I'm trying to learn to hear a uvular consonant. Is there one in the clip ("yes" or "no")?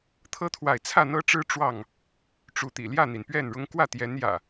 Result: no